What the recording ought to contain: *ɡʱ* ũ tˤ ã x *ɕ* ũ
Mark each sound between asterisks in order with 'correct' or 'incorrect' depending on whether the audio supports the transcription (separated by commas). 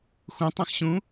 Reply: incorrect, correct